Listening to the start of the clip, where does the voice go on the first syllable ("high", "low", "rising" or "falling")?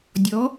rising